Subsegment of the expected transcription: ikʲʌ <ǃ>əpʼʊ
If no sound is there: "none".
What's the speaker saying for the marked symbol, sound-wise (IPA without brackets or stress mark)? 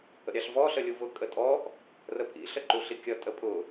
tʼ